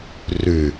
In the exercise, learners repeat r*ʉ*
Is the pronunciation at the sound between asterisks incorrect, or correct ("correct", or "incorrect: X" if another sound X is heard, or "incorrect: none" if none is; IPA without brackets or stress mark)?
correct